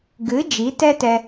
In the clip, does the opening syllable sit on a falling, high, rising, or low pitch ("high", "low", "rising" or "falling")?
rising